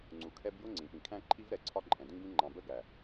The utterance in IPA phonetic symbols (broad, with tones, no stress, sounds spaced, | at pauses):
ŋ͡ǀ u˨ kʰ ɛ˦ b j ʊ˦ ŋ͡ǀ ĩ˨ p ĩ˨ kʰ æ̃˦ ǃʰ i˦ v ɾ ɛ˨ ǀʰ ɒ˦ ǃʼ ɛ̃˨ d ĩ˦ ɡ ĩ˦ ŋ͡ǃ ɑ̃˨ b ə˦ ɡ æ˨